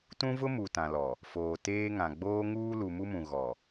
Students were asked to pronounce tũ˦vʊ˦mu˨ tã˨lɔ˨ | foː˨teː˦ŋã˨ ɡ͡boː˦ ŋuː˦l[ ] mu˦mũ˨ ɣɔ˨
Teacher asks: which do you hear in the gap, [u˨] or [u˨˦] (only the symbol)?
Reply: u˨